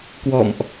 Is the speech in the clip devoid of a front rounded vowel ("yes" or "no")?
yes